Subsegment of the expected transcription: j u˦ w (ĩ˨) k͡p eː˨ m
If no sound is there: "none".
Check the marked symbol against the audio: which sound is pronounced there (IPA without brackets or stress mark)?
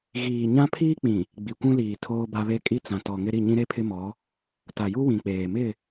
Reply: ĩ˨